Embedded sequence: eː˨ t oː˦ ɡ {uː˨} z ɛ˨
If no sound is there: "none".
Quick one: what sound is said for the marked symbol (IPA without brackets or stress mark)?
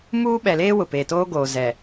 oː˨